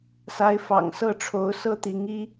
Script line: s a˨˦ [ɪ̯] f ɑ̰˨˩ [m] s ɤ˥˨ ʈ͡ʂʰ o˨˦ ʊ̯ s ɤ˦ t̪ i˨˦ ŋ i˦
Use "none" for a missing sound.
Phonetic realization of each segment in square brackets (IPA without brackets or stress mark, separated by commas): ɪ̯, ŋ